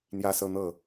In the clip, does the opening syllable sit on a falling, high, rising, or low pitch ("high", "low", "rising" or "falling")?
high